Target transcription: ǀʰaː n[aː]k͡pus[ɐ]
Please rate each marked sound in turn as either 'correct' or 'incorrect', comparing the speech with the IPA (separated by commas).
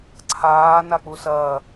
incorrect, incorrect